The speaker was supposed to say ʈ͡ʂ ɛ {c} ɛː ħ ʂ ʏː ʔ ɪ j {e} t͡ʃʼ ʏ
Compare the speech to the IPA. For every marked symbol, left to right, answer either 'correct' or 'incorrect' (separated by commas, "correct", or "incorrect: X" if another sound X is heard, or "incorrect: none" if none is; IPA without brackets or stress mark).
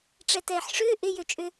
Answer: incorrect: t, incorrect: ø